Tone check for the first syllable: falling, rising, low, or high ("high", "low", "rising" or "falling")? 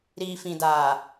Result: low